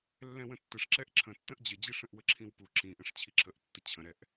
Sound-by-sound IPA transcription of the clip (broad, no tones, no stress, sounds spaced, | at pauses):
lː ɛ̃ w ə̃ tː ə ʂ ǁ ɛ ʔ ǁʰ ə̃ tː ə̃ ʔ d͡ʑ ə d͡ʑ i ʂ ə̃ ʔ w ə ǁʰ ĩ w p u ǁ ĩ ʔ ə̃ ʂ t͡ɕʰ i ǁʰ ə ʔ tː ə t͡ɕʰ ə̃ ɾ ɛ ʔ